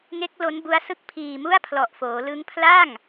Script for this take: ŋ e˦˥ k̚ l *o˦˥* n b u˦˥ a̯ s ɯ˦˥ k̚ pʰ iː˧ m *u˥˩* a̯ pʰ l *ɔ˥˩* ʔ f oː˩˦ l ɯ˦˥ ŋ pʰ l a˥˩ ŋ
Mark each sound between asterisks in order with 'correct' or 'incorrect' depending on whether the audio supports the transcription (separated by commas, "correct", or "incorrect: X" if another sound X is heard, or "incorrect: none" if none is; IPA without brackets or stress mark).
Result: correct, correct, incorrect: ɔ˨˩